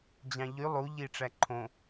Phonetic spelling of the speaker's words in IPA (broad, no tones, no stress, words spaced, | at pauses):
d͡ʑɑ̃ʎy lˠuʎi ʈ͡ʂæǃʰõ